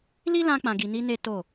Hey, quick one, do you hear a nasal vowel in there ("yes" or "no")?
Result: yes